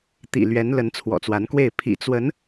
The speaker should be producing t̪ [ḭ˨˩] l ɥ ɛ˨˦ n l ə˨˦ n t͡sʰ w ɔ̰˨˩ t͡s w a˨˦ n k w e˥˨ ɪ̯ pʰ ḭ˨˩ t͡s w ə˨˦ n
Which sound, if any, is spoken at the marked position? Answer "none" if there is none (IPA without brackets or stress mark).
ḭ˨˩